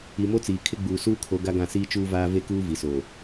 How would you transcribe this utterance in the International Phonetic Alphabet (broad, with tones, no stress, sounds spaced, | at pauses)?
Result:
i˨ m o˦ t͡s iː˨ kʰ ɪ˦ ɡ͡b uː˨ s uː˦ kʰ o˨˦ ɡ a˦ ɡ ã˦˨ s iː˦ t͡ʃ uː˦ v aː˦ v e˦ k uː˦ v i˨ s oː˨